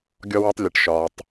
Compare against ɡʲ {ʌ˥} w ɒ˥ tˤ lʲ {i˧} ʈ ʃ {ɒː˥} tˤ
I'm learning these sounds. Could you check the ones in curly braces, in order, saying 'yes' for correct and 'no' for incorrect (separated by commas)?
no, no, no